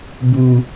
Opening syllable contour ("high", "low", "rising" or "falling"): low